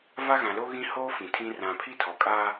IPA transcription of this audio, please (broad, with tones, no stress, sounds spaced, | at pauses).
v a˦ ɣ ã˨ l o˦ ɣ ĩ˦ h oː˦ f ĩ˨ tʰ ĩ˦ r ã˨ pʰ i˦ tʰ ɔ˨ kʼ aː˦